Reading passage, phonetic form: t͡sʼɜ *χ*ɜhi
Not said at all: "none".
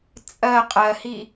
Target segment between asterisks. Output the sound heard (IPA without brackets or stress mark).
qʼ